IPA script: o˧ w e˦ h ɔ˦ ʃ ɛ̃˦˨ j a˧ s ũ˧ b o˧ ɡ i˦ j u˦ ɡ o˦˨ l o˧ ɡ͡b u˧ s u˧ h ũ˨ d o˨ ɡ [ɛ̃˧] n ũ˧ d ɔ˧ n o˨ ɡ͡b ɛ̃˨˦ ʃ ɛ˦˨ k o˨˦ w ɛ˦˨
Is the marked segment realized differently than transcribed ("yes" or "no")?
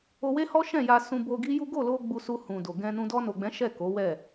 no